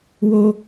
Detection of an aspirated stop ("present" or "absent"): absent